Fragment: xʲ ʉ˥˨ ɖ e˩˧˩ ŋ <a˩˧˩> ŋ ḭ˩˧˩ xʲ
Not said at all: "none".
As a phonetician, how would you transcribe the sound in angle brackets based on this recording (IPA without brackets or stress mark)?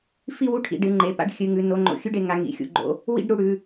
a˩˧˩